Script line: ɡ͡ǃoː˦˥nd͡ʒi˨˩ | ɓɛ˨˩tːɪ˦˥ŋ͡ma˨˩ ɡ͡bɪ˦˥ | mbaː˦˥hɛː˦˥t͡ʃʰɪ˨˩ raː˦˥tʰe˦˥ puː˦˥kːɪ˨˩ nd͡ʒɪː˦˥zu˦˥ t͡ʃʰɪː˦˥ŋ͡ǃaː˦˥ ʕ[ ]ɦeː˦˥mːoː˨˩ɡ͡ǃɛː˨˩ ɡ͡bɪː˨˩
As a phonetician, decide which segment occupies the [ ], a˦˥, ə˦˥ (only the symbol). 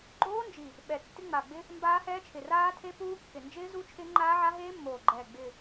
a˦˥